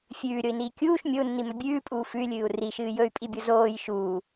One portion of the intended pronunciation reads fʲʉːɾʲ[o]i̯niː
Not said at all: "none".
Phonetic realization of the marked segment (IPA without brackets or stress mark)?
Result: o